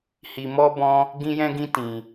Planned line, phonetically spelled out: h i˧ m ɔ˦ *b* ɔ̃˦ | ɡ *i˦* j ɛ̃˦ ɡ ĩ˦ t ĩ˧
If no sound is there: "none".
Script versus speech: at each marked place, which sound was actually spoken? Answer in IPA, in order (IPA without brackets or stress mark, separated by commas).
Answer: b, ĩ˦